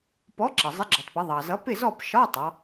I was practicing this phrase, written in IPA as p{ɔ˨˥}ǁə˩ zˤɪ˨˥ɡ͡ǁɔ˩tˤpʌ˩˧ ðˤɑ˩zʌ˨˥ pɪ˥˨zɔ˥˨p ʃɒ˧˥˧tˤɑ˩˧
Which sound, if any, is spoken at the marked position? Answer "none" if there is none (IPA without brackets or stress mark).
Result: ɔ˨˥